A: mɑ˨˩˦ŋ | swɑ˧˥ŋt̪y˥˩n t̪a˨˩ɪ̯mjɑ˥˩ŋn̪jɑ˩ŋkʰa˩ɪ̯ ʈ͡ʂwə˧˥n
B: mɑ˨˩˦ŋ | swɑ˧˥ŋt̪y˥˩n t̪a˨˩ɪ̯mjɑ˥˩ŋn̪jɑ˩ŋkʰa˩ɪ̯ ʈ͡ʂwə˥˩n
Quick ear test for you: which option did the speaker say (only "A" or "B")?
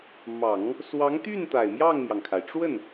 B